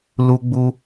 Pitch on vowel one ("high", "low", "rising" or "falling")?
high